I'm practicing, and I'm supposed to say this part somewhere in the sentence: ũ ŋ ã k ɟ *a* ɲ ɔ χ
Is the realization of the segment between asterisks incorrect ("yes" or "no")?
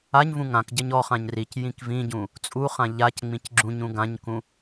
yes